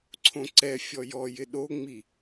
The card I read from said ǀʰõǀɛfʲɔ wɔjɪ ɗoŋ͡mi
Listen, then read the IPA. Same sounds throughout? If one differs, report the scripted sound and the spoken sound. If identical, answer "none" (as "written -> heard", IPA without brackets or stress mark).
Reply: w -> j